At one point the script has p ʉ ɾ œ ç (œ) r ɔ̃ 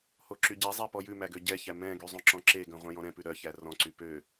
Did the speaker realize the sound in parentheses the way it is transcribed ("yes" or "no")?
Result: no